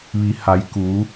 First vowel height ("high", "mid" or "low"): high